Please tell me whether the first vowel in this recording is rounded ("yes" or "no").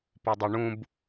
yes